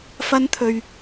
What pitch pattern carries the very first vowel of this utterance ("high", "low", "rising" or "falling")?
high